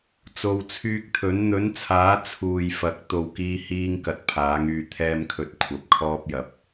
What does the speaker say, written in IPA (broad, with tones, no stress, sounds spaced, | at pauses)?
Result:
t͡s o˨˧ w t͡sʰ yː˧ k̚ t̪ʰ ɵ˨˥ n n̪ ɵ˨˥ n t͡sʰ aː˨˥ t͡sʰ uː˨ j f ɐ˨˥ k̚ t̪ o˧ w k iː˥ h iː˥ ŋ k ɐ˨ t̚ pʰ aː˨˥ ŋ yː˧ t̪ʰ ɛː˥ m kʰ ɵ˧ t̚ kʷʰ ɐ˨˥ p̚ kʰ ɔː˥ p̚ j ɐ˨ p̚